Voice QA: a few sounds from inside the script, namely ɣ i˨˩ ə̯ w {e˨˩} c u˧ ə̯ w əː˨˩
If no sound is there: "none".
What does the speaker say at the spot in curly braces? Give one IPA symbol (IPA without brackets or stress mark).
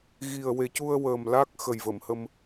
e˨˩